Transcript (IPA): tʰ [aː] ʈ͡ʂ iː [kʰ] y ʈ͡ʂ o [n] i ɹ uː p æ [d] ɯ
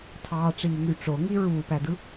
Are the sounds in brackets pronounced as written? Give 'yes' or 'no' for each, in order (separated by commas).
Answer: no, no, no, yes